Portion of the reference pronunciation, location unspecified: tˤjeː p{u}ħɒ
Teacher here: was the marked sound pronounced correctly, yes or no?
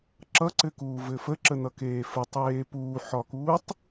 no